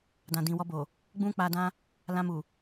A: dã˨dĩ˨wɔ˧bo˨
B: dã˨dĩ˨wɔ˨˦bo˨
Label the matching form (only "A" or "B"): A